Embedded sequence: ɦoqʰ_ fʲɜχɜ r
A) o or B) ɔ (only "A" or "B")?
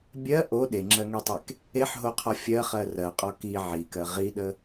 B